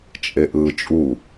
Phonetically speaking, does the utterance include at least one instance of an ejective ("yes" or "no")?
yes